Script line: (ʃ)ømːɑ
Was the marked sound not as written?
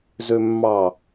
yes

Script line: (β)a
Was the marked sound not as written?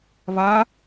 no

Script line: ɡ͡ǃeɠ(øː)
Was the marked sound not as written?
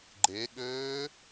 no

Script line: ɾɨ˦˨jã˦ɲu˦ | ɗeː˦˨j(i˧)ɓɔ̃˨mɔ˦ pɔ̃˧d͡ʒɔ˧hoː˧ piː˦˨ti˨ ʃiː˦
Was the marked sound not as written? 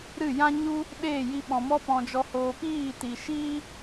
no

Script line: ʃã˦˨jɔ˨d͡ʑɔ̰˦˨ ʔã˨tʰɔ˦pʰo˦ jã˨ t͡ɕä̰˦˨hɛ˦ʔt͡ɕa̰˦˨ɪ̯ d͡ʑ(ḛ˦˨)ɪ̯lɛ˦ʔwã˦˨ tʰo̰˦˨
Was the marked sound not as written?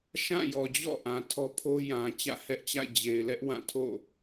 yes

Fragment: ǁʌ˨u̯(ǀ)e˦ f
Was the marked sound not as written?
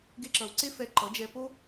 no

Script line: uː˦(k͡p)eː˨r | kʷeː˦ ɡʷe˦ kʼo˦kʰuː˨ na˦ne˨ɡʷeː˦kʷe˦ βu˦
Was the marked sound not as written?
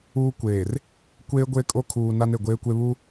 yes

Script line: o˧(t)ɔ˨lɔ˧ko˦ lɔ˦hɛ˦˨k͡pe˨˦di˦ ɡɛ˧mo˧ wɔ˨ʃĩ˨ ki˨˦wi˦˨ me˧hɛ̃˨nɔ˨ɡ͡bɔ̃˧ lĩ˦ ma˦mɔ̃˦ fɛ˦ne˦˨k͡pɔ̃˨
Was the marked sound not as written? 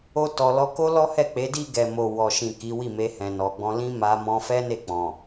no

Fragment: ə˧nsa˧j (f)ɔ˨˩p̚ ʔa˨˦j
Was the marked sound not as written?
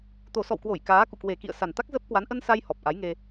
yes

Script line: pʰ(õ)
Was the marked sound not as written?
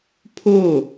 yes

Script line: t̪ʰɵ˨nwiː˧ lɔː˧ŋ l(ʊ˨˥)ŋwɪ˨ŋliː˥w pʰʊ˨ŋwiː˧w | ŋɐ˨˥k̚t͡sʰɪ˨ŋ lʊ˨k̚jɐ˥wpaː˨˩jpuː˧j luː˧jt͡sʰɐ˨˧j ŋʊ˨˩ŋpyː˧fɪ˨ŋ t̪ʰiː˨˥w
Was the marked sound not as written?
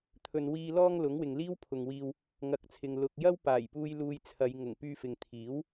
no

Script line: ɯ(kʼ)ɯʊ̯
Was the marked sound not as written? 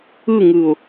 yes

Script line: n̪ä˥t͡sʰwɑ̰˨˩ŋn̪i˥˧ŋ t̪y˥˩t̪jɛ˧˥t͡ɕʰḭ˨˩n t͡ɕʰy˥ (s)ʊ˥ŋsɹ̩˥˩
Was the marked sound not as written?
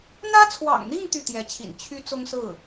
yes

